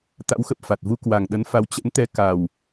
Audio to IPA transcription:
t̪a̰˧˥wxə˨˩p̚fa˨˩t̚vu˧ kwa˨˩ŋɗə˨˦nfa˨˦w t͡ɕə̰˧˥nt̪ɛ˨˦ka˨˩w

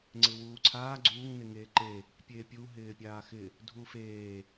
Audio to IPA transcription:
ŋ͡ǀɪwuːǀʰaː ɡ͡ǀuːŋ nɪŋeːǃe | pʲeːpʲu ɦɪːpʲaːxɪ | dʱufeː

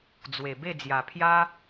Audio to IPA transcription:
d͡zwe˨˩be˥˧d͡zja˨˩pʰja˦

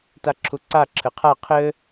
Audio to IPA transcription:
taǁʰuǀa ǁʰɘqʰa qʰɘ

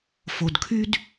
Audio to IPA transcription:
fo˨dkʰy˦d

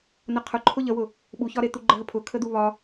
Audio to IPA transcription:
nəqʰʊǃʰʊ ʎəwʊ | ɓuçɒɾe t̪uɡ͡ǃəɦəpʰʊ kʰəd̪uβɒ

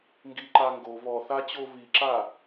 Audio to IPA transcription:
ŋɡiǃaŋɡo βɔθa t͡ɕoβiǁa

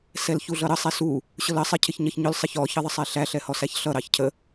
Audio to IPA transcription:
sɛlçuɮʌɾə sˤɛsu | ɕʊlə sˤɪ cʰɪçɲʌçɲʊl sˤɪçɔ çəðˤəsˤɛɬæ ɬɛhɔsæçɬʌ ɾɑçcʰə

